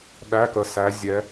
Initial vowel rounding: unrounded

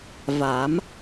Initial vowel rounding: unrounded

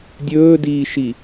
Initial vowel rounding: rounded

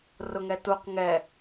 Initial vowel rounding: rounded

